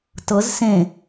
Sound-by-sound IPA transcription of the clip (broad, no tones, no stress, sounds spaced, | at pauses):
t ɤ z s ẽ